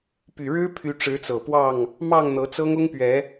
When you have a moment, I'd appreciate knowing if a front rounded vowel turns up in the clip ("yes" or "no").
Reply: yes